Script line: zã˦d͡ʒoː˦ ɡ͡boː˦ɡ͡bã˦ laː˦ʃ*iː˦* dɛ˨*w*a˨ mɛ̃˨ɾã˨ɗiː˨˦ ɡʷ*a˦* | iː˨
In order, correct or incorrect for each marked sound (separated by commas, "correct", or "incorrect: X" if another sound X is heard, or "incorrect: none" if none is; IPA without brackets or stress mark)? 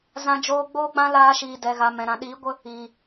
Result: incorrect: iː˧, incorrect: ɣ, incorrect: ə˦